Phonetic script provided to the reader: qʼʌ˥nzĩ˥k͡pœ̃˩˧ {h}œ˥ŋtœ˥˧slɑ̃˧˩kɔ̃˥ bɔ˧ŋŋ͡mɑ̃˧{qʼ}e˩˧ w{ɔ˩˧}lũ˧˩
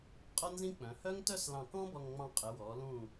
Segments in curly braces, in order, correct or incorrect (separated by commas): correct, correct, correct